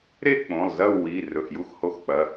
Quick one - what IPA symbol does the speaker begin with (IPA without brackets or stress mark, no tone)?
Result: ɾ